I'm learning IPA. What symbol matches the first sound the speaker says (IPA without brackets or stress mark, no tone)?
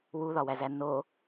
w